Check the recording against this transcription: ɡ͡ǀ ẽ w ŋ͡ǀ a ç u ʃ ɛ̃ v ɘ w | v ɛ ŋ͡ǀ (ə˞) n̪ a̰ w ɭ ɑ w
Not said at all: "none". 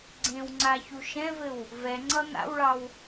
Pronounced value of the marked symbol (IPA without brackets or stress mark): ʌ